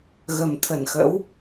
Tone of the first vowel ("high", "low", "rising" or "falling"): low